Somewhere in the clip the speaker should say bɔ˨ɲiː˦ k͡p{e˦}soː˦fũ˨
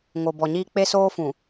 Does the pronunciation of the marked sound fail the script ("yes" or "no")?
no